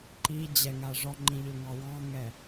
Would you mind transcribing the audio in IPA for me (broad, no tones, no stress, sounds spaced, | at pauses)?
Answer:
ǃ i d͡ʑ ɛ ŋ a ʐ ɔ ŋ͡ǃ ĩ ʎ ø ŋ ɑ w ɑ̃ ŋ ɛ